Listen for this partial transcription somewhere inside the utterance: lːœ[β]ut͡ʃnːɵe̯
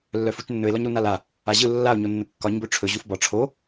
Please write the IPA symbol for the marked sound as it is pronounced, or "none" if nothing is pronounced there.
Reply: f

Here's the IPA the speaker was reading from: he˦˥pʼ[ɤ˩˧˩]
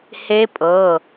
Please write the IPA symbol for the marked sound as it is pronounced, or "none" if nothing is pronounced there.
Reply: ɤ˩˧˩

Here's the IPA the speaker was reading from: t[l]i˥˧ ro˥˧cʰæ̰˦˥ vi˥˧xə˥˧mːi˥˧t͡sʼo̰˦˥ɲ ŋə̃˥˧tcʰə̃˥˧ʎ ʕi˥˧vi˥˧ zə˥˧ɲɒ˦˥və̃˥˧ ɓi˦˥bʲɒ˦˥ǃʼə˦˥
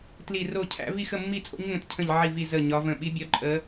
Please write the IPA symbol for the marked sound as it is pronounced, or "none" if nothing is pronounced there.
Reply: l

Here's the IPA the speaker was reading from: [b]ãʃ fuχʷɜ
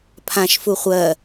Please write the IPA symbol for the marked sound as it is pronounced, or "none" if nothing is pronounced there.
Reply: pʰ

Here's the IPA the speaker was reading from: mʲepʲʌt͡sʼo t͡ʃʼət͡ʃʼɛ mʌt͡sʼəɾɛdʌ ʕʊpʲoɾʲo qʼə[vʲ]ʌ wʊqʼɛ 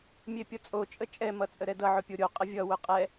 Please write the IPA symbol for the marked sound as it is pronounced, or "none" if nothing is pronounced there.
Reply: vʲ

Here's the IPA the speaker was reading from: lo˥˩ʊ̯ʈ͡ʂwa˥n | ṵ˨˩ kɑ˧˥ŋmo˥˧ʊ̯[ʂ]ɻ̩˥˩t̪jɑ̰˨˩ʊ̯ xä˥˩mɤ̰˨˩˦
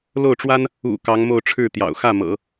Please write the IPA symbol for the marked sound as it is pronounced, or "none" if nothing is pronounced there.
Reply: ʈ͡ʂʰ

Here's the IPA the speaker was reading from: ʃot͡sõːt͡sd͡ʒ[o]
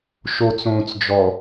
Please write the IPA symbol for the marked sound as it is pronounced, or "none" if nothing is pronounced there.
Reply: ɔ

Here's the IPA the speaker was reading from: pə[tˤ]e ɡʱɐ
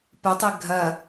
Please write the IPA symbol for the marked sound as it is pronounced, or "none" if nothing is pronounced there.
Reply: tˤ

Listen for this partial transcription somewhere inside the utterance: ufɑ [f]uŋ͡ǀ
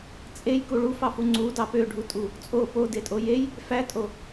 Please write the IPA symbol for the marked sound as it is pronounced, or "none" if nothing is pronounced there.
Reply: f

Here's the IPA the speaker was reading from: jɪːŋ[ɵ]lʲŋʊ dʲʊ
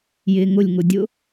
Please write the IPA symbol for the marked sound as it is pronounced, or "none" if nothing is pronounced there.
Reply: ʊ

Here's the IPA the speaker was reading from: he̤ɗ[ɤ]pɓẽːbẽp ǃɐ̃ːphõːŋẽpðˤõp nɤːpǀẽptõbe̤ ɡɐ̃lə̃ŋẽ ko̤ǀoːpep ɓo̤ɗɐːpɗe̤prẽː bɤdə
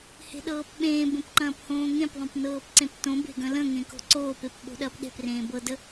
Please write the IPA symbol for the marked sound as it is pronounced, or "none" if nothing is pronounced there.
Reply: ɤː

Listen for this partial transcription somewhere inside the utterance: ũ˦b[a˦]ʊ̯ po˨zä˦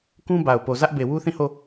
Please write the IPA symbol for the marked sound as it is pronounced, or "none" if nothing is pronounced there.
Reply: a˨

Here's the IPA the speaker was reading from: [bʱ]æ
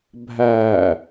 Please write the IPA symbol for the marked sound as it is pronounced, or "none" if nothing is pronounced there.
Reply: bʱ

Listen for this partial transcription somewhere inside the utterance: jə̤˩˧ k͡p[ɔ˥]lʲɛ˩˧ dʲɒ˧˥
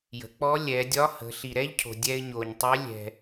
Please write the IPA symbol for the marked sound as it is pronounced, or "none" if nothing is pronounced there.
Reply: ɔ˧˥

